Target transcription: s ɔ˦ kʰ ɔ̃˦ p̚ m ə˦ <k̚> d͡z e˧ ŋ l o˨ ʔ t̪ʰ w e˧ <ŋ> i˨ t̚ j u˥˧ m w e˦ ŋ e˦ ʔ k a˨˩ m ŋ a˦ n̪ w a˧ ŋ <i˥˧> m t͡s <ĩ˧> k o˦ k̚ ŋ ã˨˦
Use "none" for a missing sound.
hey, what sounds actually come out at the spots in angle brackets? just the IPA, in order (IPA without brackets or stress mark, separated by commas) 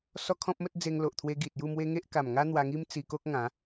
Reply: t̚, ɡ, i˦, i˧